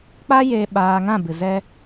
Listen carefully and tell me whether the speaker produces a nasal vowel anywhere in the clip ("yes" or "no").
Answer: yes